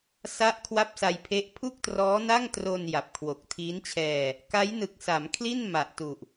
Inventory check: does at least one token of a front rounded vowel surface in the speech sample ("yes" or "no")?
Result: no